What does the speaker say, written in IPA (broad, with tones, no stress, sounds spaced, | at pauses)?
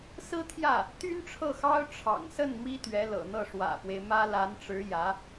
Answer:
s ɹ̩˥ t̪ʰ j ä˥˩ | t̪ y˥ n ʈ͡ʂʰ ɤ˥˩ x ɑ˥ ʊ̯ ʈ͡ʂʰ ɑ̰˨˩ ŋ s ə˥˩ n m i˥ t̪ ɥ ɛ˧˥ l ɤ̰˨˩ n̪ ɤ˥˩ ʂ w ä̰˨˩ f w e˦ ɪ̯ m ä˥ l a˧˥ n ʈ͡ʂ ɻ̩˧˥ j ä˧˥